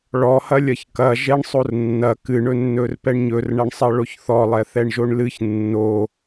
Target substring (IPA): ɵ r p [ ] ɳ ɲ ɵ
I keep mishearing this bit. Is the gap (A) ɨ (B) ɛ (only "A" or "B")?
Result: B